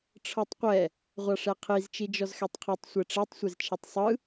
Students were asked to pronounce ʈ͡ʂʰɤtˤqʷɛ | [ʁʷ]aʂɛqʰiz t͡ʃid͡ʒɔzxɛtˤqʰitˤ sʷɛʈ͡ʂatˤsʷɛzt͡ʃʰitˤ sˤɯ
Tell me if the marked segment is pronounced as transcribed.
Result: yes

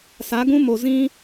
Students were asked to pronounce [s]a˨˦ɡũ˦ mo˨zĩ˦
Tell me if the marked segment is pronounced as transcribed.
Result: yes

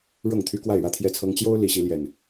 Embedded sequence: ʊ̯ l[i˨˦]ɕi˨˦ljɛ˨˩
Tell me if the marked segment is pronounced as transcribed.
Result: yes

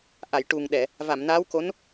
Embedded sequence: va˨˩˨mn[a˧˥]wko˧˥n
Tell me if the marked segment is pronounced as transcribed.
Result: yes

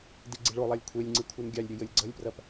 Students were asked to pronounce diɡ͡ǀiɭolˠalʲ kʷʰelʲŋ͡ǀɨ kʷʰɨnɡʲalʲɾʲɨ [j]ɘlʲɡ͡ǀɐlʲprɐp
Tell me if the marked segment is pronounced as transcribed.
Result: yes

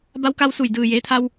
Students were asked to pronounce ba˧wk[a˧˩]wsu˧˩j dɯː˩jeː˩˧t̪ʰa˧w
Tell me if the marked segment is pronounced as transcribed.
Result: no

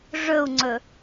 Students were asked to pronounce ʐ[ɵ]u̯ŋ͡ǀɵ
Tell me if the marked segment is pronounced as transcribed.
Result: yes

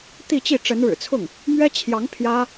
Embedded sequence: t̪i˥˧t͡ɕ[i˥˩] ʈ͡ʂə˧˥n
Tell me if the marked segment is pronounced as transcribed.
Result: yes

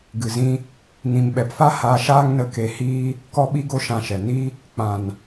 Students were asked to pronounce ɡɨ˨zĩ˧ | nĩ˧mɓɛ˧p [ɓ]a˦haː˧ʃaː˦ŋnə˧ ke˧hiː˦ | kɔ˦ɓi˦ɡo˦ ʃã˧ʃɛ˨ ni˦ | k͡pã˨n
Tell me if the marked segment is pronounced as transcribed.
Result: no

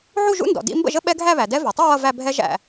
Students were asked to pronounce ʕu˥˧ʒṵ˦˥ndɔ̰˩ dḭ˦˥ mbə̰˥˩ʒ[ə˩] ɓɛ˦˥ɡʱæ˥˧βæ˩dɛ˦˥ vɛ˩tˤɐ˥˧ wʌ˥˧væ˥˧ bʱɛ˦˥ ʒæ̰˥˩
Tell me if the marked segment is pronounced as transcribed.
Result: no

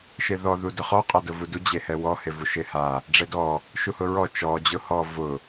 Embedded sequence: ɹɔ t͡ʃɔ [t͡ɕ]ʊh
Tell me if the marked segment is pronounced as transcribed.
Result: no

